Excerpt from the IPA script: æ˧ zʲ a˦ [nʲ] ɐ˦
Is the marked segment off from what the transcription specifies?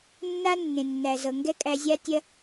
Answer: yes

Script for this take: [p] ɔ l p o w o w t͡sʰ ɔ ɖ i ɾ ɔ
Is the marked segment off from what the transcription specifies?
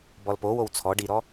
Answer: yes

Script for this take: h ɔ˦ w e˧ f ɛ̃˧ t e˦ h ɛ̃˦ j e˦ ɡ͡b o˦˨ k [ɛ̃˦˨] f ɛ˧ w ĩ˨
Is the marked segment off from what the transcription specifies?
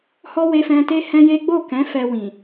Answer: yes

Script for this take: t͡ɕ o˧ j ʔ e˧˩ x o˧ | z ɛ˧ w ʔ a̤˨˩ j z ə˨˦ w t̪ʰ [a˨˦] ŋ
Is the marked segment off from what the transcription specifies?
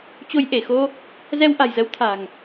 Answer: yes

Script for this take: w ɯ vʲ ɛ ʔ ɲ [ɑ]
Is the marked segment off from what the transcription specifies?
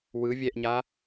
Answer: yes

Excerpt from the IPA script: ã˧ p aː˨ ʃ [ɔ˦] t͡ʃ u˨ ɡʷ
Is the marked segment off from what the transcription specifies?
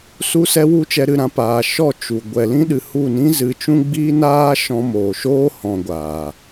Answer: yes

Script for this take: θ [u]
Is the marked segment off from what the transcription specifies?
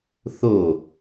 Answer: yes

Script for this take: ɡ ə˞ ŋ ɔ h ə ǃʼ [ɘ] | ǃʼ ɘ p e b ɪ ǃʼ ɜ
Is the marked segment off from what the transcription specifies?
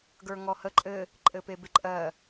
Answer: no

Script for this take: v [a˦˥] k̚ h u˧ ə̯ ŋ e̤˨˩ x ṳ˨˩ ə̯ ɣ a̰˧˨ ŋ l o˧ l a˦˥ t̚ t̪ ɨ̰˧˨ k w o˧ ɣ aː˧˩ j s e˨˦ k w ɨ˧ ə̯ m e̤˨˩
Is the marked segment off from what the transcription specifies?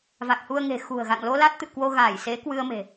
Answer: yes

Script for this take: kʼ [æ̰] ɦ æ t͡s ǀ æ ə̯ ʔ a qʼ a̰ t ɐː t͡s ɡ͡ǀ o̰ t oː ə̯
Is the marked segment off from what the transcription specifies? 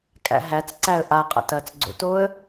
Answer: no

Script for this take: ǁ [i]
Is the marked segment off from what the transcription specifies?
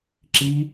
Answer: no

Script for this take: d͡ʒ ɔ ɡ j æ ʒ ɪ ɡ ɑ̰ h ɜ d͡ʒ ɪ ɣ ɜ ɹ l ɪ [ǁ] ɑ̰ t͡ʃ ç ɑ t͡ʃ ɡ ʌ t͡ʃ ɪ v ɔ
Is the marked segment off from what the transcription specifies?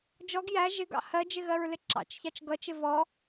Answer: no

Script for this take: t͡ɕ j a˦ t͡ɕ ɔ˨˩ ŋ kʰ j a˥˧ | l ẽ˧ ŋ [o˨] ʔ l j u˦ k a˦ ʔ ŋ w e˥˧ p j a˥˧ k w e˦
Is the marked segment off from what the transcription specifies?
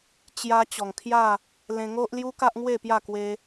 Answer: yes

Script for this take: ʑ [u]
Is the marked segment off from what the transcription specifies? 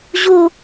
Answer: no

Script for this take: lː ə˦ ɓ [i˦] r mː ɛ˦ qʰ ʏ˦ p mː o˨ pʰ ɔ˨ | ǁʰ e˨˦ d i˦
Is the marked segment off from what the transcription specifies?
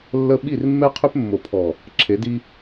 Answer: yes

